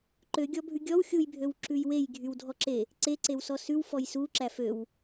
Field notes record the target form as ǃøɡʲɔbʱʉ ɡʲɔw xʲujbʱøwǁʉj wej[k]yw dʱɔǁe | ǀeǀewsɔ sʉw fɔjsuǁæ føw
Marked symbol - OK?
no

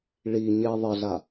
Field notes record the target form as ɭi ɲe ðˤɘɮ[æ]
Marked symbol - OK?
no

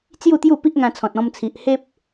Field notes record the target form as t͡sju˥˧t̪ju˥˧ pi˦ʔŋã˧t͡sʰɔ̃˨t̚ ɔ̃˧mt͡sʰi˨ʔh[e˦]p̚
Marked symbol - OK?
yes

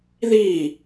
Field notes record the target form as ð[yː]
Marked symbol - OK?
no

